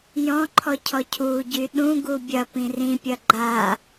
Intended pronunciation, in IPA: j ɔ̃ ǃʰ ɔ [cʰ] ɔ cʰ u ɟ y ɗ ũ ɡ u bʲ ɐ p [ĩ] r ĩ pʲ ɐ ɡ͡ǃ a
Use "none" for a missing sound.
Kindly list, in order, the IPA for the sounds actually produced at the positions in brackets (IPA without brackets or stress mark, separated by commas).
cʰ, ĩ